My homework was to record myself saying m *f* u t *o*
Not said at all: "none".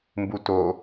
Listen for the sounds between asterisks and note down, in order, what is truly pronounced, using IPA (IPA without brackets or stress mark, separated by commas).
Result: b, o